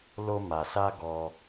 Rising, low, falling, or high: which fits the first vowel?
high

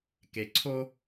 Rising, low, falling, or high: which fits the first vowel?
low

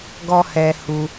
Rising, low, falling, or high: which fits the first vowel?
high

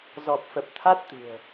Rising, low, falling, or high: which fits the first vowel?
low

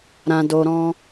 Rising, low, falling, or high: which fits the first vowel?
low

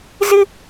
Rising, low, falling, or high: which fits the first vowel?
high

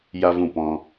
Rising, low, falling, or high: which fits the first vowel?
high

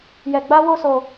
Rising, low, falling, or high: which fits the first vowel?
low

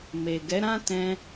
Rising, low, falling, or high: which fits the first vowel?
low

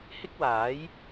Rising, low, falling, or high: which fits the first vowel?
high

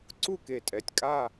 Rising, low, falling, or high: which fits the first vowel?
falling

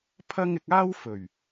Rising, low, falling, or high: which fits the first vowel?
high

